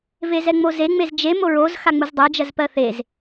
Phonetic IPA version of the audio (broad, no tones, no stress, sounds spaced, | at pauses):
v e z ɛ ŋ͡m o z e ŋ͡m e z d͡ʒ e m o ɹ o z x a ŋ͡m u z dˤ ɛ d͡ʒ ɜ z p ɜ θ e z